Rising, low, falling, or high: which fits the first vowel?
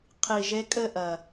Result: low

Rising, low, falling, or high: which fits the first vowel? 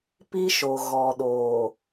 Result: high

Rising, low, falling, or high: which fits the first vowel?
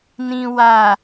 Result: low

